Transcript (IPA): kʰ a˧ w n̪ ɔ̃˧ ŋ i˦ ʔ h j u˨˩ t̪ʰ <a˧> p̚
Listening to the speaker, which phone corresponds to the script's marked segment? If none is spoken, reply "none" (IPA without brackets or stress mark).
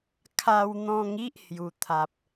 a˨